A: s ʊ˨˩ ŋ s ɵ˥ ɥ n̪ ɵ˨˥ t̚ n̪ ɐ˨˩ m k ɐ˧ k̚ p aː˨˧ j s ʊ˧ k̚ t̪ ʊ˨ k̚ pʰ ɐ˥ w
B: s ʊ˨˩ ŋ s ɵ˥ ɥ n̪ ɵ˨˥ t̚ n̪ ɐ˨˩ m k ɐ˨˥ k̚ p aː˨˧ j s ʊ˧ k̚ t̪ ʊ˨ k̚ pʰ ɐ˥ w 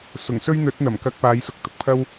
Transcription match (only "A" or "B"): A